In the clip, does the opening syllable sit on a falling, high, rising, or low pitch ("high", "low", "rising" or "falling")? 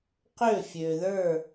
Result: falling